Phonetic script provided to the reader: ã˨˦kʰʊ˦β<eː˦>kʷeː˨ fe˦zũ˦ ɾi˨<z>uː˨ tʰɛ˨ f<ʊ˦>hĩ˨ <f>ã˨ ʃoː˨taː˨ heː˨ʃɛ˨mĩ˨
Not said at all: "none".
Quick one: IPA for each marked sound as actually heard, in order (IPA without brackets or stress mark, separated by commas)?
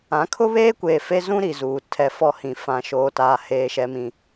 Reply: eː˦, z, ɔ˦, f